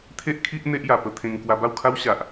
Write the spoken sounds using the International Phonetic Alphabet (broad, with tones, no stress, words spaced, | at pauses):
t̪ʰe˦ʔkʰi˦ʔ n̪e˦ʔja˨˩pə˥˧ t̪ʰẽ˧ŋ kwa˧ba˥˧wkʰa˦w ɕa˨ʔ